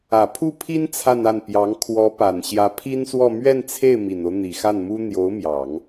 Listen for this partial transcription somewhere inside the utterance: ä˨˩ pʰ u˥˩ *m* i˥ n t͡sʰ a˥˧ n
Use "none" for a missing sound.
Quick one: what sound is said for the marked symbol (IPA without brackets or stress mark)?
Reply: pʰ